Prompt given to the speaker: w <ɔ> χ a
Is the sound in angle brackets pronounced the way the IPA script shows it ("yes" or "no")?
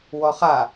yes